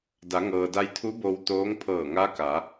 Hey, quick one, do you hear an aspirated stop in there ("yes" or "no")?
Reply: yes